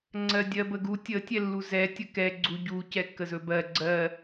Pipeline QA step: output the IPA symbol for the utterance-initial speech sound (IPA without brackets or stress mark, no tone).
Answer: ŋ͡ǀ